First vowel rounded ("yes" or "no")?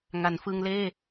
no